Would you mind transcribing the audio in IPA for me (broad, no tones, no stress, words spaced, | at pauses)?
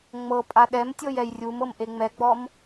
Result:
ŋ͡mɤ pʼaɗɛmtʲɤj ɛjrʲumɤm ʔeŋ͡mɛɡ͡bɔm